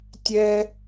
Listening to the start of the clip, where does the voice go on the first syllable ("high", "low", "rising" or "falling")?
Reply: high